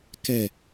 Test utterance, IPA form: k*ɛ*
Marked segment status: correct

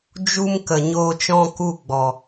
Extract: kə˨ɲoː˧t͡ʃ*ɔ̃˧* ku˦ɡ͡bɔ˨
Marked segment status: correct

